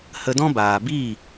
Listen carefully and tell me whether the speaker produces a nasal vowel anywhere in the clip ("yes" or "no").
yes